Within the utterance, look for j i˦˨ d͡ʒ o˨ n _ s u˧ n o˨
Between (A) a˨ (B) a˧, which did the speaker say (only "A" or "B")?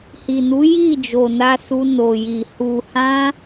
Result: B